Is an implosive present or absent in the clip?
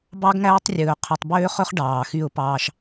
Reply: absent